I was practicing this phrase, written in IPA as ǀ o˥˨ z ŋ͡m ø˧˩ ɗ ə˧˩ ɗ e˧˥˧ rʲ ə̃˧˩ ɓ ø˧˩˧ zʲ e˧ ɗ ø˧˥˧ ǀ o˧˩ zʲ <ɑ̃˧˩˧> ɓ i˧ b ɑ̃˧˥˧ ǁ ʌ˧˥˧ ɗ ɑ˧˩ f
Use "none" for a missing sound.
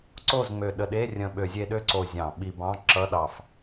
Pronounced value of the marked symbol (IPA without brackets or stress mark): ɑ̃˧˩˧